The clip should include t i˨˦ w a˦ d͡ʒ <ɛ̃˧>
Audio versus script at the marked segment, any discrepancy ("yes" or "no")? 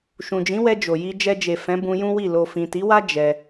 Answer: yes